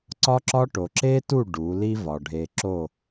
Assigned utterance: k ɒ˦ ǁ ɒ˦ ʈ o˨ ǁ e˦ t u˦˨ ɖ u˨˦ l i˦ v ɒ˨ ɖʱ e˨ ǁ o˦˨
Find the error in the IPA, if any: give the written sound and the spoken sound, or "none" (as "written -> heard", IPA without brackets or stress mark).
k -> ǀ